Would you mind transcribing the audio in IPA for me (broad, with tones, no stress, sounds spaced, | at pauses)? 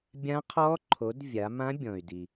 bʲ ã˦˥ qʰ ɔ˦˥ ǃʰ o˨˦ d vʲ a˨˦ m ã˦˥ bʲ ɔ̃˨ y̯ d i˨